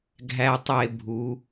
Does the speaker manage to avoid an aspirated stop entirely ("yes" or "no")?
yes